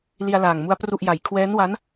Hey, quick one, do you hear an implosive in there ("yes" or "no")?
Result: no